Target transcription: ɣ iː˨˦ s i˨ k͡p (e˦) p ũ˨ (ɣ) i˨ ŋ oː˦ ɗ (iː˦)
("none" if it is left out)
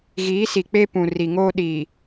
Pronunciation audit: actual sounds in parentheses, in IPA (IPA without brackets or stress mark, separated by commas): e˦, r, iː˨